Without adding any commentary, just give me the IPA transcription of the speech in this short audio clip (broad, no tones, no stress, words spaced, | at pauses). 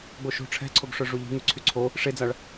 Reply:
ɡ͡boʃo̤ ʈ͡ʂʰɛ̤ǀʰoɡʂœ ʐuʎi̤ ŋyǀʰyǀʰo | ʂed͡zaɭ